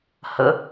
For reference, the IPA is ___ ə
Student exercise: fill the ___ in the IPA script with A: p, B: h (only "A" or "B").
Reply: B